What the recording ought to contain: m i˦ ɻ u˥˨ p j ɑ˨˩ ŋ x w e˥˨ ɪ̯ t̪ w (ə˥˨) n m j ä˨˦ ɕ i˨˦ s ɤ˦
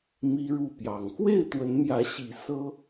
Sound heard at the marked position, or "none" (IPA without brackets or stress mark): ə˨˦